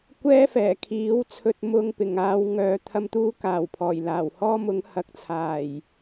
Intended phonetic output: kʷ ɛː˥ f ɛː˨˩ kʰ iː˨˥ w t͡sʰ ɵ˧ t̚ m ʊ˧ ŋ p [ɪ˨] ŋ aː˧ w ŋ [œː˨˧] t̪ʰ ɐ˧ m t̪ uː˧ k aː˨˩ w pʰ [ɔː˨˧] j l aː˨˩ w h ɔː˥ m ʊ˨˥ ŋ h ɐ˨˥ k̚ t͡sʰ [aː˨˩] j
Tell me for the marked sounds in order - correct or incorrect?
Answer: incorrect: ɪ˨˩, correct, incorrect: ɔː˨˩, correct

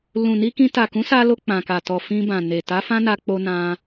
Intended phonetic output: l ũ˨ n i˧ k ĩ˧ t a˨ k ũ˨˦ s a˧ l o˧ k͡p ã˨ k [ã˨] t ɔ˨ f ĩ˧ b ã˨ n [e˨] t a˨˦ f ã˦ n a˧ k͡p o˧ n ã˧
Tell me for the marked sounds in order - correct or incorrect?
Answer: incorrect: a˨, correct

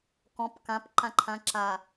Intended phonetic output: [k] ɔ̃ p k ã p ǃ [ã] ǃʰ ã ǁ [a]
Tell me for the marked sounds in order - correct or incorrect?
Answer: correct, correct, correct

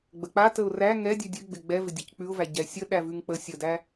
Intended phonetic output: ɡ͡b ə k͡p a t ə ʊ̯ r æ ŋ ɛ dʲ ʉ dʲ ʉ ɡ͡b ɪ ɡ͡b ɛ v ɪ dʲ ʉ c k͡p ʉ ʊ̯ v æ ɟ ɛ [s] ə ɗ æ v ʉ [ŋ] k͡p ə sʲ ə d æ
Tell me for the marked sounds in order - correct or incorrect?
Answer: incorrect: sʲ, correct

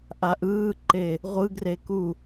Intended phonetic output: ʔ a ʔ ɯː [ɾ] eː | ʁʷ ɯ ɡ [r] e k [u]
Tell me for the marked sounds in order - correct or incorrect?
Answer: incorrect: ǃ, correct, correct

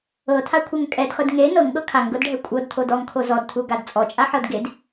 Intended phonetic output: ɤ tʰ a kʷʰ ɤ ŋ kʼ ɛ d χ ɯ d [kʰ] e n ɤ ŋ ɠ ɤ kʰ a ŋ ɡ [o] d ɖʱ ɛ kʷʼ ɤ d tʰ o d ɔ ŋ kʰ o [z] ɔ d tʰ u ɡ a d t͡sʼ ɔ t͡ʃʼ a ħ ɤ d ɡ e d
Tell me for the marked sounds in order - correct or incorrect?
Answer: incorrect: ŋ, incorrect: ɤ, correct

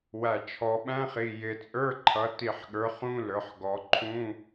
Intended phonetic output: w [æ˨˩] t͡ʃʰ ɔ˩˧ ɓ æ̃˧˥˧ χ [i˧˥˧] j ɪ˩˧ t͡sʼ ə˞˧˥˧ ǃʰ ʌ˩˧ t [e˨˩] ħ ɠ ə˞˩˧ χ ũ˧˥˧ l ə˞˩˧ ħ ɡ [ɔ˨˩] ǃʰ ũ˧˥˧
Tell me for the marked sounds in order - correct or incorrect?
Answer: correct, incorrect: i˨˩, incorrect: i˨˩, incorrect: ɔ˩˧

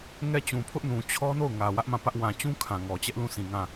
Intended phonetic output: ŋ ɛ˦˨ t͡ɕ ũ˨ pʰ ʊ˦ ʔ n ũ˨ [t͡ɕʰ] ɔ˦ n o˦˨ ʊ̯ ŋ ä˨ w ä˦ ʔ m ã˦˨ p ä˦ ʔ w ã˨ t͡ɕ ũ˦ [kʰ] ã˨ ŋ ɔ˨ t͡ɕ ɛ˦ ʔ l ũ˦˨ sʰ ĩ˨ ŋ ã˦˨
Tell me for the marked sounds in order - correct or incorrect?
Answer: correct, correct

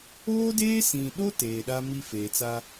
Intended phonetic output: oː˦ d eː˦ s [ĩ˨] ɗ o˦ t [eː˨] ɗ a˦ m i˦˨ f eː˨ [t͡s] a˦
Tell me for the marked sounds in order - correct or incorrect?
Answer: correct, correct, correct

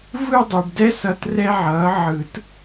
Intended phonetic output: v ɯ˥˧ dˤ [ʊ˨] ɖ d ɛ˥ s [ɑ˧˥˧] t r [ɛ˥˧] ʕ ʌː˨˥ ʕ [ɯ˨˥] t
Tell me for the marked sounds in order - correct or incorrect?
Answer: incorrect: u˨, incorrect: ʌ˧˥˧, incorrect: ɛ˥, incorrect: ɯ˨˩˦

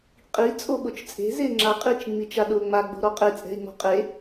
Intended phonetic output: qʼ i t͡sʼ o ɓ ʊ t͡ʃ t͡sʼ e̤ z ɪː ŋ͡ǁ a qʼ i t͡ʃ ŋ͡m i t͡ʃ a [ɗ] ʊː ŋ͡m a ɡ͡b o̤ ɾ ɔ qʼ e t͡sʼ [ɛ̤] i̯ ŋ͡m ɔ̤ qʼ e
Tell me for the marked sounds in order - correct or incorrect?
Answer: correct, correct

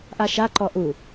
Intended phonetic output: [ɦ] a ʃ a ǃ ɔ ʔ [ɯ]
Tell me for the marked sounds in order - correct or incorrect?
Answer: incorrect: ʔ, incorrect: u

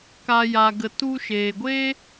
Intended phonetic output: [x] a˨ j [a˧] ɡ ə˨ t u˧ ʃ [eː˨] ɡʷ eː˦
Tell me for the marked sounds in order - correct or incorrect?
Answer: incorrect: k, incorrect: a˨, correct

